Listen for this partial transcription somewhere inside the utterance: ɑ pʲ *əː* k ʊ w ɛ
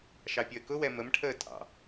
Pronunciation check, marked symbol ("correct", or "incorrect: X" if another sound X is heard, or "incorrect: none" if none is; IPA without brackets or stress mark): correct